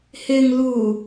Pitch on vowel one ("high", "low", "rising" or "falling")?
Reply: low